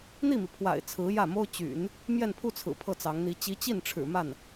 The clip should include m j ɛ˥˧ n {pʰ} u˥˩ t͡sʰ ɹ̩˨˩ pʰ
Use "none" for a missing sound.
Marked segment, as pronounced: pʰ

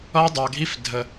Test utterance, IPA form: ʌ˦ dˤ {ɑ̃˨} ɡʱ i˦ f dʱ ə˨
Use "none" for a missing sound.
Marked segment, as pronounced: ɑ˨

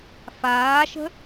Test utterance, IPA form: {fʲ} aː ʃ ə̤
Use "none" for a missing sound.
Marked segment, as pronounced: f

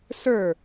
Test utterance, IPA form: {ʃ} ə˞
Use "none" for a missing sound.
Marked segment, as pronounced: s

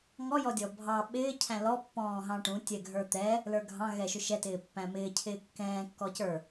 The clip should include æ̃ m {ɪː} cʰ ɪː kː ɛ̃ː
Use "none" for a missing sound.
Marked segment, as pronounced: ɪː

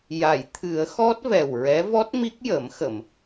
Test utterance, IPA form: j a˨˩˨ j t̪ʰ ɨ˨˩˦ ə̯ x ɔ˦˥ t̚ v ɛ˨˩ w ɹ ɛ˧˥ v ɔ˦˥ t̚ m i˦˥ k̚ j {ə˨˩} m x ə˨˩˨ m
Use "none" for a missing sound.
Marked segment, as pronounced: ə˨˩˦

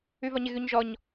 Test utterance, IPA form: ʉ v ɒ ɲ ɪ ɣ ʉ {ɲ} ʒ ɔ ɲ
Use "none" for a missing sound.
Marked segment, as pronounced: ɲ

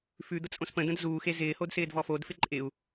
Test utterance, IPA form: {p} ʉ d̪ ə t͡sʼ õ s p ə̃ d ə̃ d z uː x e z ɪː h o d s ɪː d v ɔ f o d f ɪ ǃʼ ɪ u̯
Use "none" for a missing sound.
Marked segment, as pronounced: f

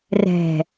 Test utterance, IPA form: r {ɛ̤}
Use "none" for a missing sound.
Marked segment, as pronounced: ɛ̤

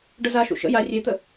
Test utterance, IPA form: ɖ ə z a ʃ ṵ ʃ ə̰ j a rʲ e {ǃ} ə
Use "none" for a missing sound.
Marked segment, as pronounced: t̪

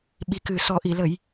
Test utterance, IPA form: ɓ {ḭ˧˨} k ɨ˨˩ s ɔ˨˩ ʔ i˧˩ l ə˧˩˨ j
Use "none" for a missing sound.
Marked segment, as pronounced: i˨˩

